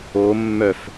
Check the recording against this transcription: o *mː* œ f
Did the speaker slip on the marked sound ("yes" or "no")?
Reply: no